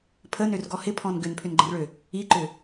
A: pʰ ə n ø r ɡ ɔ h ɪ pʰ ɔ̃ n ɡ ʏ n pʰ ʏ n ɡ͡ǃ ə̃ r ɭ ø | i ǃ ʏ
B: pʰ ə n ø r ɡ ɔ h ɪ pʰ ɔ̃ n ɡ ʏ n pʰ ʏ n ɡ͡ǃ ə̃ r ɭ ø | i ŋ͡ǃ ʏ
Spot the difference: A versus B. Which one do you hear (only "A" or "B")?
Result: A